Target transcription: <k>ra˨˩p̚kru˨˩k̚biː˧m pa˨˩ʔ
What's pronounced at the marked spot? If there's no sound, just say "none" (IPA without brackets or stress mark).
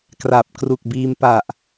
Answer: k